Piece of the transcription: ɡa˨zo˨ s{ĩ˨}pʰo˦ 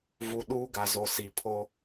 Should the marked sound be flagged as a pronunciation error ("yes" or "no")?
yes